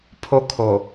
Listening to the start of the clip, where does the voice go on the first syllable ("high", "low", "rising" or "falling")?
high